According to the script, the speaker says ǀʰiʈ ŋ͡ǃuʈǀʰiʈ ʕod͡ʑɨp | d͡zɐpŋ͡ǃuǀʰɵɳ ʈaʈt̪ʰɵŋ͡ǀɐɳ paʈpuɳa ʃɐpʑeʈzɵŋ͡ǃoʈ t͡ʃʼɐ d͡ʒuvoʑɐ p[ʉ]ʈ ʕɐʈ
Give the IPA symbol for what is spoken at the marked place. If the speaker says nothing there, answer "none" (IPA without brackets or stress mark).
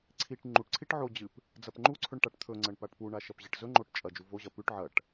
ʉ